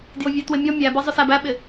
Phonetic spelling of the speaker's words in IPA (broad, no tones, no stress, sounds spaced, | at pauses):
d j ʊ vʲ æ t w ɪ mʲ ɔ mʲ æ b ə zˤ ʊ s æ b æ ɓ ɪ